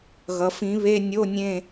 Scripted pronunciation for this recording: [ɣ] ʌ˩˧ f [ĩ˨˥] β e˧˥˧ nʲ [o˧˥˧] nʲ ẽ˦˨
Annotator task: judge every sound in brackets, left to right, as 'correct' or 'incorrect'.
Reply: correct, correct, correct

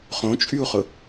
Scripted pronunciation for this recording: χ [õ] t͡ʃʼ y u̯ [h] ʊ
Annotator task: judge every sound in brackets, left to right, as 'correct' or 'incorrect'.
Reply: correct, incorrect: χ

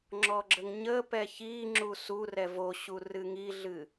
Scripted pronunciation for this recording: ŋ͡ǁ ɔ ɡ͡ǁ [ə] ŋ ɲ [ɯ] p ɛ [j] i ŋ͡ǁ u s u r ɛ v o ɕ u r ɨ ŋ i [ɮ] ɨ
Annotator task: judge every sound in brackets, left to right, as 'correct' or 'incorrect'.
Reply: correct, incorrect: ə, incorrect: ç, correct

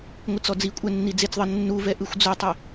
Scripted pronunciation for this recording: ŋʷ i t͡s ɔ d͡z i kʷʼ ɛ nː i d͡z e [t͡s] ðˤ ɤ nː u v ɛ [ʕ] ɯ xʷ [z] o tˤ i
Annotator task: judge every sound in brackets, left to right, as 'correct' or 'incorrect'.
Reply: correct, incorrect: ʔ, incorrect: d͡z

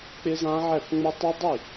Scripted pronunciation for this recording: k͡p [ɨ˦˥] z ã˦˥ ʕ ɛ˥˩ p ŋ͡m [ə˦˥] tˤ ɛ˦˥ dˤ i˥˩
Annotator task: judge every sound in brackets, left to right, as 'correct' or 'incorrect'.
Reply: incorrect: ɪ˦˥, correct

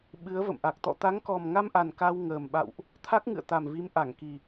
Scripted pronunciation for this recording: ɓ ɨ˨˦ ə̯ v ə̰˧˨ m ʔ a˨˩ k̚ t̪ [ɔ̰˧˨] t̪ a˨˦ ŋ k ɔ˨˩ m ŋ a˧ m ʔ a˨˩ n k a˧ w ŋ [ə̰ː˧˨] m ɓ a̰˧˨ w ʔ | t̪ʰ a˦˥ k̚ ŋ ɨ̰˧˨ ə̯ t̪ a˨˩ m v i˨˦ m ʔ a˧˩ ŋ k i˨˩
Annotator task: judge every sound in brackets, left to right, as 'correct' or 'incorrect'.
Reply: correct, incorrect: əː˨˩

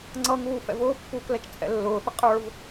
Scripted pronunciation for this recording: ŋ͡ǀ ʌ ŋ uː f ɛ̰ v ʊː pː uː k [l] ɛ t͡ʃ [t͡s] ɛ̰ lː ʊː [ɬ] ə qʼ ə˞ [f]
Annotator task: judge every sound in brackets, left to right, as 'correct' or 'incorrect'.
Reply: correct, incorrect: tʰ, incorrect: θ, incorrect: v

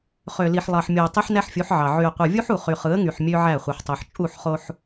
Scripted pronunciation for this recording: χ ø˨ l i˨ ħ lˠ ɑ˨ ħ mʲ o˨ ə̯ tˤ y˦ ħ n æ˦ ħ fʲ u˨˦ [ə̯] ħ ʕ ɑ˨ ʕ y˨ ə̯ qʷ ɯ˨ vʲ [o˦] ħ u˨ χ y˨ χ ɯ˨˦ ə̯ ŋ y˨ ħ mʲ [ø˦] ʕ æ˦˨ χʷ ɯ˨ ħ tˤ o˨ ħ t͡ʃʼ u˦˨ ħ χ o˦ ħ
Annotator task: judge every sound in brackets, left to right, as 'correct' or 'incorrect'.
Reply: incorrect: none, incorrect: u˦, correct

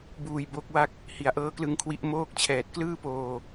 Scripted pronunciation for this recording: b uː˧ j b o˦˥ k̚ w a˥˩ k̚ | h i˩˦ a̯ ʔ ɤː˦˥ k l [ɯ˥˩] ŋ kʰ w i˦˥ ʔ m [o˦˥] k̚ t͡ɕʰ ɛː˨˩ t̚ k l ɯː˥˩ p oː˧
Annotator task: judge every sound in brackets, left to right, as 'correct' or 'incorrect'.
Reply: incorrect: ɯ˧, incorrect: oː˦˥

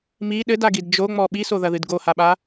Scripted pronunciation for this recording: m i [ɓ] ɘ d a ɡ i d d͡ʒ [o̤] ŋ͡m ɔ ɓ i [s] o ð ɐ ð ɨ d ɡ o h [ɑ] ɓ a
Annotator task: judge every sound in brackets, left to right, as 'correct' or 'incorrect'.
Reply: incorrect: ɗ, incorrect: o, correct, incorrect: a

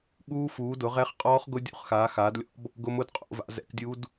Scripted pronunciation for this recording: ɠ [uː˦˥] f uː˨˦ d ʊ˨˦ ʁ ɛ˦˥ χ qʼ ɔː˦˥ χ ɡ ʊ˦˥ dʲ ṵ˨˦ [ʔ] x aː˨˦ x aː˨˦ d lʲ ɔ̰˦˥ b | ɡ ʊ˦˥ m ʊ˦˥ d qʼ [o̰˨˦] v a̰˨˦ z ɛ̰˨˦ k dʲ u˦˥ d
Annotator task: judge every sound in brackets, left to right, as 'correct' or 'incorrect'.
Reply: correct, incorrect: χ, correct

